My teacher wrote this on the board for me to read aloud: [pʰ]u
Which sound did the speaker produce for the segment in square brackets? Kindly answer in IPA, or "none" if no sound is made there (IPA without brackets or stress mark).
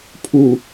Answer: pʰ